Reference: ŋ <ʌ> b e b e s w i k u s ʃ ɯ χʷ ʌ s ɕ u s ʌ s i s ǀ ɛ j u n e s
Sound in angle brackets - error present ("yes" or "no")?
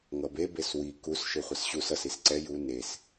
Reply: no